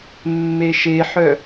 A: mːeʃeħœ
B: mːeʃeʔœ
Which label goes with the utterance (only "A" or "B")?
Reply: A